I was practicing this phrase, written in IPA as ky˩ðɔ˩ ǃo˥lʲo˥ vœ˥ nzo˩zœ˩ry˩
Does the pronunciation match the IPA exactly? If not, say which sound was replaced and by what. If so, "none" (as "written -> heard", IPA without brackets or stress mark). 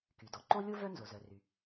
ð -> d